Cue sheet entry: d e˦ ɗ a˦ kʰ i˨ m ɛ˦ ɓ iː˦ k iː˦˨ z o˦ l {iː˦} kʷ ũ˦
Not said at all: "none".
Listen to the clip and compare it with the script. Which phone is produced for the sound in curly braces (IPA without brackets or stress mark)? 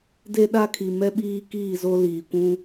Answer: iː˨